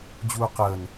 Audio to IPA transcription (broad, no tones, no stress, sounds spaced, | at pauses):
d͡ʑ uː q əː n